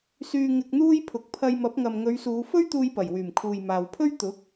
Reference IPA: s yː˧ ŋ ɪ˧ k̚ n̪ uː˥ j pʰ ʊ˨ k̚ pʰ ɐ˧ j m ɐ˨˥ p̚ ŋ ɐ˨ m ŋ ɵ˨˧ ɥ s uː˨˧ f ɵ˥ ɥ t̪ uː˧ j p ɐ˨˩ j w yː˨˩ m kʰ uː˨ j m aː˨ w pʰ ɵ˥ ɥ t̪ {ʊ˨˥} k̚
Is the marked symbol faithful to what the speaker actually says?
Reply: yes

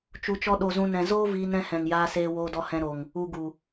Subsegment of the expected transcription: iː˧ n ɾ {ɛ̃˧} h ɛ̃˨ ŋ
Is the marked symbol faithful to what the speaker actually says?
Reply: yes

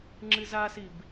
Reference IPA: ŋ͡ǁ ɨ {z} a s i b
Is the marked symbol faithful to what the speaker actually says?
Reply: yes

